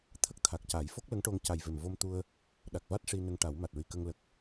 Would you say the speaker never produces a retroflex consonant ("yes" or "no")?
no